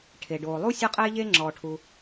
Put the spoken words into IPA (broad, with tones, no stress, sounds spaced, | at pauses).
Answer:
ʈʰ e˩ ɖ oː˩ lˠ u˥ sʲ ɔ˧ qʼ eː˧ ʎ eː˧ ŋ͡ǁ ɔː˩ ʈʰ u˩